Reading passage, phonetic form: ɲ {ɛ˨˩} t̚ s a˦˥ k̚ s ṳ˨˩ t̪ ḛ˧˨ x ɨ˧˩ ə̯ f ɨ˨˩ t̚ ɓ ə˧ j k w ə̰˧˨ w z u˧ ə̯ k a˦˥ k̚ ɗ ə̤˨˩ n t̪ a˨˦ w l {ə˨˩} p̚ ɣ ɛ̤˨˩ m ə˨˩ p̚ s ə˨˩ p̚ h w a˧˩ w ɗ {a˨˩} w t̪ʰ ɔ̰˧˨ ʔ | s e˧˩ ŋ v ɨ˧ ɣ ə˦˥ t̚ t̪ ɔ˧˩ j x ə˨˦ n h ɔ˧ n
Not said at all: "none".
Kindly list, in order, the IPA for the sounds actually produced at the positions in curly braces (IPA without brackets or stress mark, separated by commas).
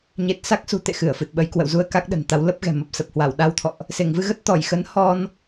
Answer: e˨˩, ə˦˥, a˧